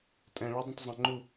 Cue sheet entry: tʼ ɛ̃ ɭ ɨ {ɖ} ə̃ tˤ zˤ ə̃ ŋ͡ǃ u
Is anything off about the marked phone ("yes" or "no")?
yes